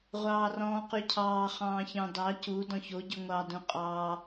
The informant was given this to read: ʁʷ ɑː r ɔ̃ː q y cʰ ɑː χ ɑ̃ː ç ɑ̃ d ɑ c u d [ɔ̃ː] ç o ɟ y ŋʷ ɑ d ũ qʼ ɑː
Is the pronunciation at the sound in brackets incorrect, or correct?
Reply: incorrect